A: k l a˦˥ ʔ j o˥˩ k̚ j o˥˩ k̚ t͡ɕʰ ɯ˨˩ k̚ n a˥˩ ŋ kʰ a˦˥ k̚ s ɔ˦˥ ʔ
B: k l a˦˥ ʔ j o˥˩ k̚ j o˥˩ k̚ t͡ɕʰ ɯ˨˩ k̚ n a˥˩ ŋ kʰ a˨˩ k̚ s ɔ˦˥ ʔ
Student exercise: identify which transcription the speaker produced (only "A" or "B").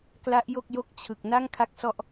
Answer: A